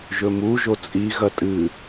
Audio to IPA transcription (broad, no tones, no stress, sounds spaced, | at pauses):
ʒ ɵ m u ʒ o t͡sʼ i ɣ ɐ tʼ ɨ